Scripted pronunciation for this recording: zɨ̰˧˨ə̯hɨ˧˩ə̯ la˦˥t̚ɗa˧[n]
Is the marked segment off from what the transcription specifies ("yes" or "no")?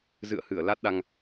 yes